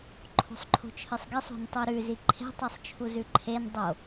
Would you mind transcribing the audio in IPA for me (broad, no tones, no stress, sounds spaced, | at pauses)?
ǃʰ o̤ sˤ ǃʰ o̤ t͡ʃʰ ɨ sˤ ɡ e sˤ o̤ n tˤ u ɾ ʉ z i ǃʰ e̤ tˤ i sˤ t͡ʃʰ u z ʉ ǃʰ e n dˤ o